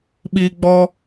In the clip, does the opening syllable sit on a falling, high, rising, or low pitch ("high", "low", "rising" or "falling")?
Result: high